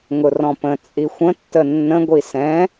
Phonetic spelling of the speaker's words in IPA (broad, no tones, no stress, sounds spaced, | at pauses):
ŋ ʊ r ɔ̃ p ə̃ t͡sʼ i xʷ ə̃ tː ə nː ə̃ ɡʷ i s ɛ̃